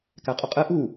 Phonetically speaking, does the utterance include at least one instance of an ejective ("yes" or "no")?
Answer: yes